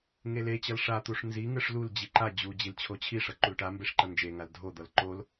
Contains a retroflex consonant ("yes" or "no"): yes